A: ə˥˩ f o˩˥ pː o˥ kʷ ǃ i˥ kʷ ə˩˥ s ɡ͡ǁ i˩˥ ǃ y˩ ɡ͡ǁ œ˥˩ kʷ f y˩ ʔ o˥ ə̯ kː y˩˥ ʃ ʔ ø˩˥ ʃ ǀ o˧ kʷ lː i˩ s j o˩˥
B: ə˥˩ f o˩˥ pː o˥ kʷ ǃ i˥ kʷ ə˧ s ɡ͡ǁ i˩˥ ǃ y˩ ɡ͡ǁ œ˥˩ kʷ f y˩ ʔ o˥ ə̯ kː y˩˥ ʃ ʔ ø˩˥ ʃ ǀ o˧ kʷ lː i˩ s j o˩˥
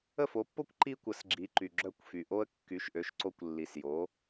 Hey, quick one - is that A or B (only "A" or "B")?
A